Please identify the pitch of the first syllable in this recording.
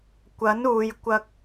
rising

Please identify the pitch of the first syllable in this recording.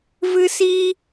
high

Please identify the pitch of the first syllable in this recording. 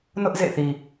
high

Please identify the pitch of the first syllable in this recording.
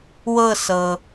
falling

